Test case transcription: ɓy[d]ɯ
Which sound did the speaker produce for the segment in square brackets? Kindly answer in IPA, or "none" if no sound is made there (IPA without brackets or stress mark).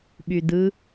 d